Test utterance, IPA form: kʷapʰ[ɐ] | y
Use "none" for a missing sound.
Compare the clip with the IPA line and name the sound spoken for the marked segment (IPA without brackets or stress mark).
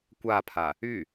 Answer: a